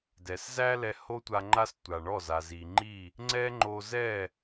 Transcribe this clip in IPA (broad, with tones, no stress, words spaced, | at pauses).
dɛ˨szæ˦lɛ˧ ho˦tʷa˧ ŋ͡ǃa˦stʷa˨ɳɔ˦˨ za˨zi˨ŋ͡ǃi˦˨ | ŋ͡ǀɛ˦ŋ͡ǃo˧zɛ˦˨